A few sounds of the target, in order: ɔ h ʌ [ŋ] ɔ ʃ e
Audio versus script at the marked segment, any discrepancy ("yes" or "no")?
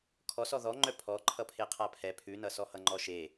yes